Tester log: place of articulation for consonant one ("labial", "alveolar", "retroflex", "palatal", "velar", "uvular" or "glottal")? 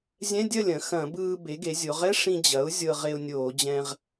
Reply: alveolar